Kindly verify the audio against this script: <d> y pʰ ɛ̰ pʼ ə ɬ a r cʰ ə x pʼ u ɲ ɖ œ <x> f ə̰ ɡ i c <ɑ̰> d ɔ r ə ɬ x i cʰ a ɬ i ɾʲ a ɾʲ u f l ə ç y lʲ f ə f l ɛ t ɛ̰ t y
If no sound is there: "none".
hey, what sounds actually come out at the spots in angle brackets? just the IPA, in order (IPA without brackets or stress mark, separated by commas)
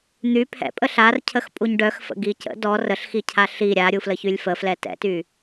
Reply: n̪, x, ə̰